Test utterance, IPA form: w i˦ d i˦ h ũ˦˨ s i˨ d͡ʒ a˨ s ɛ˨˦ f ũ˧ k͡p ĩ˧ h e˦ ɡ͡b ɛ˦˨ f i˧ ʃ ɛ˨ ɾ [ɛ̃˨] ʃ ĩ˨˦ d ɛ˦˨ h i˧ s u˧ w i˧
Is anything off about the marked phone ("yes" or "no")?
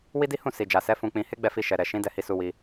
yes